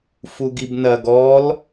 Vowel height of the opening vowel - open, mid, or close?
close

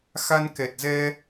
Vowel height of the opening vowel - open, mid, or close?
open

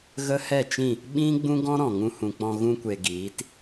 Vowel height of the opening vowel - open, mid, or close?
mid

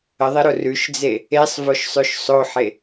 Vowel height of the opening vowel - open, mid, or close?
mid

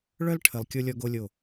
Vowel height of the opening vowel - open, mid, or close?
mid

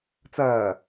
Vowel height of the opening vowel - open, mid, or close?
open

